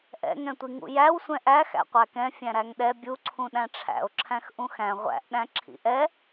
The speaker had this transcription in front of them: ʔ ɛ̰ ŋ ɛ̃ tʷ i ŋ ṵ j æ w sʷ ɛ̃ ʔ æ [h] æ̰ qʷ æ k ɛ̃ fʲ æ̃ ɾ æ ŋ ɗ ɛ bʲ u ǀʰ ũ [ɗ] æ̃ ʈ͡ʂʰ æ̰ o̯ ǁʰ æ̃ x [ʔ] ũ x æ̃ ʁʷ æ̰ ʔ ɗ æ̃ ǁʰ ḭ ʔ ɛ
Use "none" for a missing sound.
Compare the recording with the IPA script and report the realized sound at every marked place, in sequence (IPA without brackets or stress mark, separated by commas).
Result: x, ɗ, ʔ